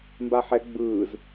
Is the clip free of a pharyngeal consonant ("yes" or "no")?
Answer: no